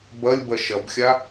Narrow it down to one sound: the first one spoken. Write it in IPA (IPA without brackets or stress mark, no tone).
b